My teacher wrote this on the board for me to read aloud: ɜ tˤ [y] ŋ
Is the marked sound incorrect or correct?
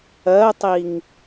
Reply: incorrect